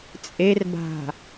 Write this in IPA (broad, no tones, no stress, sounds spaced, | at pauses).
t͡sʼ e r b a̤